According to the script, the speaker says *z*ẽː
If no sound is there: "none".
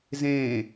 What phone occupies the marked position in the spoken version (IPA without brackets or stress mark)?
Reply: z